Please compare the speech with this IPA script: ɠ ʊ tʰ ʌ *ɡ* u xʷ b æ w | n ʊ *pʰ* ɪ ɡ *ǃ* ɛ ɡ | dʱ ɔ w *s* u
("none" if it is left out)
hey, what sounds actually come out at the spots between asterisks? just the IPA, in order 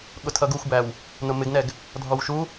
ɡ, m, n, ʃ

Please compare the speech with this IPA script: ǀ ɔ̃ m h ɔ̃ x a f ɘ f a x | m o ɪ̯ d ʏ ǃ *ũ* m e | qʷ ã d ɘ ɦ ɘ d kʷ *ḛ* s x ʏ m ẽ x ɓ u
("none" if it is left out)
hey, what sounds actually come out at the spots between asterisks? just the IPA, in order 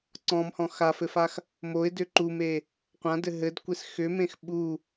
u, e

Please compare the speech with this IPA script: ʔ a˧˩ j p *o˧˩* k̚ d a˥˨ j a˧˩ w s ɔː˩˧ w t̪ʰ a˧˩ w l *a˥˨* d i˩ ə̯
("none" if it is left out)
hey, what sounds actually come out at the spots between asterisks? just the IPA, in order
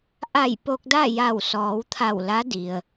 o˧, a˧˥

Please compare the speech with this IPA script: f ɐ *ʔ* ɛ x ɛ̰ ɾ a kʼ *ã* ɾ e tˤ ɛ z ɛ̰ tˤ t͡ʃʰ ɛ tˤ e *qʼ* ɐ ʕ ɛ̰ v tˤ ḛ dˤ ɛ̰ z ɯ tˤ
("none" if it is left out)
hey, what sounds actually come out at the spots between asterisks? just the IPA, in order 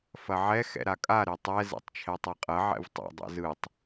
ʕ, a, qʼ

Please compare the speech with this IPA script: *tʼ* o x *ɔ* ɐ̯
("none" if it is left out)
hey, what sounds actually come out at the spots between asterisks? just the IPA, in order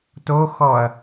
t, ɔ

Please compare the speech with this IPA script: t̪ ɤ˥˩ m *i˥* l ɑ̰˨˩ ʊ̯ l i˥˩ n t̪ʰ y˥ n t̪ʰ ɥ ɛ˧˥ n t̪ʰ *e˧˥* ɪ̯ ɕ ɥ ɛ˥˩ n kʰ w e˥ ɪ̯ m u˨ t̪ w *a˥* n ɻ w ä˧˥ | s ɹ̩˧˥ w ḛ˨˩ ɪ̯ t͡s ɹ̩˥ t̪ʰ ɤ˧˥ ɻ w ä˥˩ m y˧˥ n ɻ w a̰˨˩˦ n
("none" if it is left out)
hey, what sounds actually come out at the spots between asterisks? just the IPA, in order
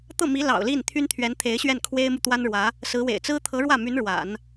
i˧˥, e˧˥, a˥

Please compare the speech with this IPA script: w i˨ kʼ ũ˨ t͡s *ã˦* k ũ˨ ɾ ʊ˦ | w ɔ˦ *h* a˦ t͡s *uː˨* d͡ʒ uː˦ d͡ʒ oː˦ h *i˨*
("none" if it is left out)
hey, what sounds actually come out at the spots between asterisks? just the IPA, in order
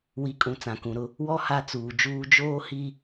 ã˨, h, uː˨, i˦

